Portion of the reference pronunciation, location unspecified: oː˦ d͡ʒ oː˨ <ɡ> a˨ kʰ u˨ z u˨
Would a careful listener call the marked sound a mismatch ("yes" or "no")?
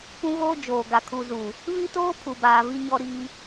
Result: no